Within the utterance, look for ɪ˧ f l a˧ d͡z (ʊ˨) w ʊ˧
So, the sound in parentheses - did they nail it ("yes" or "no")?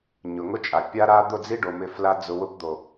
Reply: yes